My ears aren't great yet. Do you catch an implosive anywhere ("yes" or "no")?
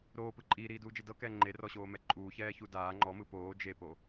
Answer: no